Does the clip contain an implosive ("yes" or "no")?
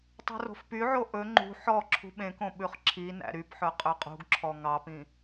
yes